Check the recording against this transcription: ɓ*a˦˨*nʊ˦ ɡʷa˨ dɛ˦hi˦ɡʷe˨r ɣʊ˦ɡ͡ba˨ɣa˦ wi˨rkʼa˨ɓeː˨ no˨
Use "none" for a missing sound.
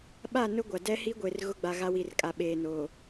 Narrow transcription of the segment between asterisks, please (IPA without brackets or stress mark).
a˦˨